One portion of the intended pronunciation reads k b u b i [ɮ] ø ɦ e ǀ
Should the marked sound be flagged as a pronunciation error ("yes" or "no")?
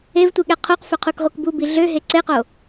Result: no